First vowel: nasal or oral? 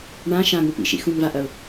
nasal